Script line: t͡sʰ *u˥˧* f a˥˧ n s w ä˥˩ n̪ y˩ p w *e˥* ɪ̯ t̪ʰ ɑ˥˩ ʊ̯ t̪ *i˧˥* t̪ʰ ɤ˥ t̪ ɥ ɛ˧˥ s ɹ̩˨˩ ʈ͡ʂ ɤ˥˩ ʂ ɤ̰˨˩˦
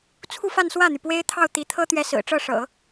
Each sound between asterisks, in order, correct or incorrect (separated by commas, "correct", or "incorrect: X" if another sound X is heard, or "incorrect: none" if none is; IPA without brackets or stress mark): correct, correct, correct